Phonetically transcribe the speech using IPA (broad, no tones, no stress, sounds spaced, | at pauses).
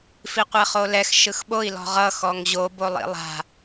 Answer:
f i qʷ ɛ χ o l ɛ x ʃ ɯ x ɓ o i̯ l ɔ̤ ʁ ʌ x ɔ ŋ ʑ o b o lˠ ḭ lˠ a̤